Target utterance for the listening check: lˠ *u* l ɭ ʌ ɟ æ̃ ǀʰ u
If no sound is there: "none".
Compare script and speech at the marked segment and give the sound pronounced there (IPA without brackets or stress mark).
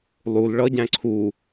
u